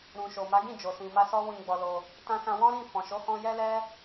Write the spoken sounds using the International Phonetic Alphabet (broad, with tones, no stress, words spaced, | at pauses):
ɾũ˨ʃo˨ma˨˦ ɡĩ˦˨d͡ʒo˨sĩ˨ma˧ sɔ˦ wĩ˧ ɡ͡bɔ˧lo˧ | tã˧sã˧wɔ̃˦ɾĩ˦˨ fɔ̃˨ʃo˨˦hɔ̃˧ jɛ˦lɛ˦